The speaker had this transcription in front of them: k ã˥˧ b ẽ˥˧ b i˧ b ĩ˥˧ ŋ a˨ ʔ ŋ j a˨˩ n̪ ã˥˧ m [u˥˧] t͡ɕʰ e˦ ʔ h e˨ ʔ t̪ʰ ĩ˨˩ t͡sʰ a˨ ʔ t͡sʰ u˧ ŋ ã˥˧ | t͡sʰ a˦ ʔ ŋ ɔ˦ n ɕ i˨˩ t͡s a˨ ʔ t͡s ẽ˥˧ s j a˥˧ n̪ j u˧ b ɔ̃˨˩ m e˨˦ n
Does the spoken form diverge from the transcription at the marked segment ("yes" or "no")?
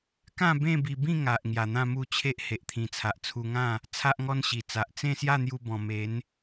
no